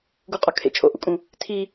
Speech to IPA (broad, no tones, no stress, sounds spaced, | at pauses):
ɡ u qʼ ɒ kʰ ḛ t͡ʃʰ o̰ ʔ ṵ kʼ ũ | tʰ i